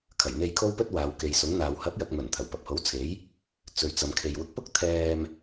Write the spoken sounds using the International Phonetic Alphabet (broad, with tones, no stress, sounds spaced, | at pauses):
kʰ ɐ˨˩ j n̪ e˧ j kʰ o˥ w p ɵ˥ t̚ w aː˨˧ w k e˨ j s ʊ˨˥ ŋ n̪ aː˨ w h ɐ˨˥ p̚ j ɐ˨ k̚ m ɵ˨˩ n t̪ʰ ɐ˨˩ w p ɐ˨ p̚ h o˨˥ w t͡sʰ e˨˥ j | t͡s ɵ˨ ɥ t͡s ɐ˨ m kʰ e˨ j w ʊ˨˥ k̚ p ʊ˥ k̚ t̪ʰ ɛː˧ m